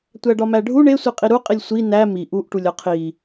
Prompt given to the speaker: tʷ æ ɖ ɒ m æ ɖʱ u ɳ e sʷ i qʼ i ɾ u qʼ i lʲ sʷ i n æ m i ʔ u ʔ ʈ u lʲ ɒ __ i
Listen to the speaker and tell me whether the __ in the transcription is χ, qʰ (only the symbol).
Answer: qʰ